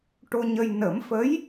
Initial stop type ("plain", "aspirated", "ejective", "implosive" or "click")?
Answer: plain